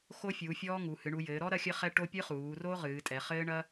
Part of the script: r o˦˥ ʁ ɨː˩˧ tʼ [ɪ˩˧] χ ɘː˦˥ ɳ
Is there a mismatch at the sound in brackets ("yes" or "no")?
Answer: yes